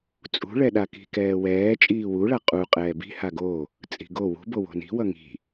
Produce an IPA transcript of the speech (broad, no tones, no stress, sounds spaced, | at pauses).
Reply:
t͡sʼ ṳ ɭ ɛ ɗ a k i̤ k ɛː w ɛː t͡ʃʼ iː w u ɭ a qʼ u qʼ ɛː b i̤ h a ɡ o | t͡sʼ i̤ ɡ o w ṳ b o w o̤ n i̤ w ʌ ŋ i̤